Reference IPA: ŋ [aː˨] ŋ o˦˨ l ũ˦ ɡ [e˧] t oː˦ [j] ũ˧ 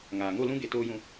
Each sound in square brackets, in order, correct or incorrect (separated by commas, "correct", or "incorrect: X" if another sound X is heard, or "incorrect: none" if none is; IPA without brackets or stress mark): correct, correct, correct